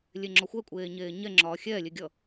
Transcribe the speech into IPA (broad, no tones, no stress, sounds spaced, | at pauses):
lʲ e ŋ͡ǁ ɔ xʷ ɛ kʷʼ eː ɲ eː ɲ ɛ ŋ͡ǁ ɒː xʲ ɛː lʲ e ɡʲ ʌ